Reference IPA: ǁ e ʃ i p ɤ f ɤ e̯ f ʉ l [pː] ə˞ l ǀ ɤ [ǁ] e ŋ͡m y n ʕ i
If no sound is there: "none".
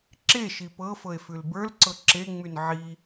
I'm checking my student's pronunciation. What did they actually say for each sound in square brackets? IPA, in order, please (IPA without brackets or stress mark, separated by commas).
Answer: b, ǁ